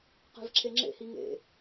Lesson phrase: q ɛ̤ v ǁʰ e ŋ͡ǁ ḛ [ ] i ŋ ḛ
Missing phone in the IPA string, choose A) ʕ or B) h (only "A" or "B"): B